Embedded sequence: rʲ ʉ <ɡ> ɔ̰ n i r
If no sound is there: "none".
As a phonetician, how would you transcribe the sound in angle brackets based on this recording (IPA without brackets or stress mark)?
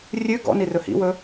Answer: ɡ